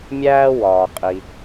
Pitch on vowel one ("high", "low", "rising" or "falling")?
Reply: high